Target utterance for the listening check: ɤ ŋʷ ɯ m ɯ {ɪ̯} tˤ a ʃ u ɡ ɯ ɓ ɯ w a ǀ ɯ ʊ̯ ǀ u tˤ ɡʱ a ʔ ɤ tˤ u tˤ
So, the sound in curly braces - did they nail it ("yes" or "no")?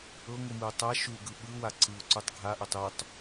no